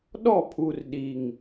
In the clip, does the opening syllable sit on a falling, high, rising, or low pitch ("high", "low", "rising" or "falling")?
falling